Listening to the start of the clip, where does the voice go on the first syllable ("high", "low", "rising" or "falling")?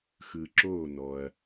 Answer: low